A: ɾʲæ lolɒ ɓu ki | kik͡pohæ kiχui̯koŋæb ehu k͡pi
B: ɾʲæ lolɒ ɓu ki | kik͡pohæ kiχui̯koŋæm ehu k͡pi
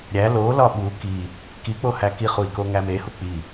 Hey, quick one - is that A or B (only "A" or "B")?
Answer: B